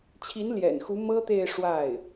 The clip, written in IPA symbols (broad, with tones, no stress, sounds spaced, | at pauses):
t͡ɕʰ i˧˥ n l j ɛ̰˨˩ n x u˧˥ m ɤ˥ t̪ e˥˧ ɪ̯ ʂ w a˥˩ ɪ̯